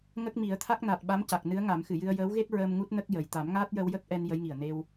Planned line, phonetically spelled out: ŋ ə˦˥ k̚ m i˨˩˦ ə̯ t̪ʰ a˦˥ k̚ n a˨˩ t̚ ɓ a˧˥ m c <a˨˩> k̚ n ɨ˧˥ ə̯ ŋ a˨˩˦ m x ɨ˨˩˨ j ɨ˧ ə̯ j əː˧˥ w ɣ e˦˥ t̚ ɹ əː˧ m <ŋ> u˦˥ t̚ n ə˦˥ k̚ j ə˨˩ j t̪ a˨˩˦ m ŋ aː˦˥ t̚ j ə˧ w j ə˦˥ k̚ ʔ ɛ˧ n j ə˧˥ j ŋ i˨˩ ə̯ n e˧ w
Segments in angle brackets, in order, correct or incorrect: correct, correct

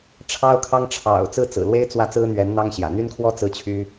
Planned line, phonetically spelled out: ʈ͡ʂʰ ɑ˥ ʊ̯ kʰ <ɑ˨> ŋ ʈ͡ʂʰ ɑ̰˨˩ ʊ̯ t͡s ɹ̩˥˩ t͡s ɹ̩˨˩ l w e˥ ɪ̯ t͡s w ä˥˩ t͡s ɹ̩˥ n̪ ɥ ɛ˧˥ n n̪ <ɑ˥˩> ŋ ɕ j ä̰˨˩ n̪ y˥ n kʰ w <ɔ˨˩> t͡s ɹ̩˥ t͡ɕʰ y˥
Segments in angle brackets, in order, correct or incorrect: incorrect, incorrect, incorrect

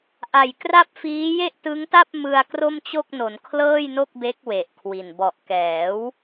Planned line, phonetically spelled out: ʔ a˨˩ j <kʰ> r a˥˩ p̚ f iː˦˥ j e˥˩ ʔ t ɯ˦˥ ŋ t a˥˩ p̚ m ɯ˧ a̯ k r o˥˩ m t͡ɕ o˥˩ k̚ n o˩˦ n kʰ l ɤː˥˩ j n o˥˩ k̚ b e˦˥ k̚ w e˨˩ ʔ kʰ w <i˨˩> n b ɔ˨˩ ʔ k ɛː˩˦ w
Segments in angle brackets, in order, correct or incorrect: incorrect, correct

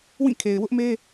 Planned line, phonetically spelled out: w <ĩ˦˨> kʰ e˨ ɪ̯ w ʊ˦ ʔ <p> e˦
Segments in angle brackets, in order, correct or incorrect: correct, incorrect

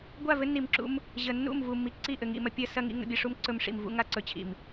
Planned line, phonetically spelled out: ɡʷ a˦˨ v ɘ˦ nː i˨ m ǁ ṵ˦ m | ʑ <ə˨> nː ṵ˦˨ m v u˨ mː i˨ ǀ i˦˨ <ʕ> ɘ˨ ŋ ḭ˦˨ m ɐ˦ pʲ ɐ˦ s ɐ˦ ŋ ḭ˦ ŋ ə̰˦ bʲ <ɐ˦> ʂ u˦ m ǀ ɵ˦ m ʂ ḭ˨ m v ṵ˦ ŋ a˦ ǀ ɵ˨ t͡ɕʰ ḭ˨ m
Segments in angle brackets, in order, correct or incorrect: correct, incorrect, correct

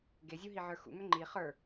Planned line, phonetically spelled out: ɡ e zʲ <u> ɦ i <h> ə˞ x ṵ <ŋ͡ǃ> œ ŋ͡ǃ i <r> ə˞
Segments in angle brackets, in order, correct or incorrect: correct, incorrect, incorrect, incorrect

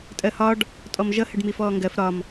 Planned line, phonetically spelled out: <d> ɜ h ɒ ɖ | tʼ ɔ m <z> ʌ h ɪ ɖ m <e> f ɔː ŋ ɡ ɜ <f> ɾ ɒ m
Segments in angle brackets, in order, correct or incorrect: incorrect, incorrect, incorrect, correct

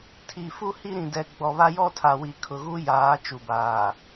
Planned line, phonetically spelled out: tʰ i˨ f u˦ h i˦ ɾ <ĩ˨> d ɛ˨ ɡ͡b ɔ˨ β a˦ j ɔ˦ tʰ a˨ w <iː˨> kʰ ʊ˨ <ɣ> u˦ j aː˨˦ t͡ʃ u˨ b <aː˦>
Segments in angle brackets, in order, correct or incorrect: correct, incorrect, correct, incorrect

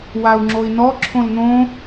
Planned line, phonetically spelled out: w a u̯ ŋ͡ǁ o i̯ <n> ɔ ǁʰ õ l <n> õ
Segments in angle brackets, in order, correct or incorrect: correct, correct

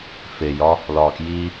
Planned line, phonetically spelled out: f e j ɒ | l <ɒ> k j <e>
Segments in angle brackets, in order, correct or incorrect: incorrect, incorrect

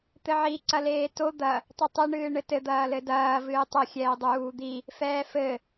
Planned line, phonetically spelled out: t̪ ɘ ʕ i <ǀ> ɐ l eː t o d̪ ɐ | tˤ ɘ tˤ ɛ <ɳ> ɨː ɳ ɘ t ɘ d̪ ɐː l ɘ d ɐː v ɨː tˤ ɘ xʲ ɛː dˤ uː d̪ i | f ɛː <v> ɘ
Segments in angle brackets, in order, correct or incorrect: correct, correct, incorrect

